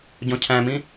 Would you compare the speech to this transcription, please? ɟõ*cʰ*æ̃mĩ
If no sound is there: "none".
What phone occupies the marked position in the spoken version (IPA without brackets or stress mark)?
cʰ